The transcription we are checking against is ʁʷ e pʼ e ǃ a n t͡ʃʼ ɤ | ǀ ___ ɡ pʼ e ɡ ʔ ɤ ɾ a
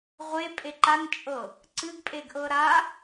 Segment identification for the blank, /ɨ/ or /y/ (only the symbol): ɨ